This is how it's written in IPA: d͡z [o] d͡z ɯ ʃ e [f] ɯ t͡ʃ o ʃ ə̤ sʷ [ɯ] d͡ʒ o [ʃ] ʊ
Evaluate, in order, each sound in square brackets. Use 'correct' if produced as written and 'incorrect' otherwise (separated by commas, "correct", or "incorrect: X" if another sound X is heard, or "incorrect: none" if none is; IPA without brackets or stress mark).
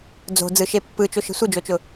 incorrect: o̤, incorrect: pː, correct, incorrect: t͡ʃ